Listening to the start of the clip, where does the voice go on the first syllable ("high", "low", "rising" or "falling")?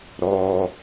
low